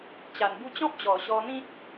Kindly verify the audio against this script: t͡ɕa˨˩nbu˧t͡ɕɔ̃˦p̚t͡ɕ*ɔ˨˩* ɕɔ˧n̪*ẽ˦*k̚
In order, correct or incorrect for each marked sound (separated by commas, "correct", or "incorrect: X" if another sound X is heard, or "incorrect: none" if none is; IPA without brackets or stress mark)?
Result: correct, incorrect: ĩ˦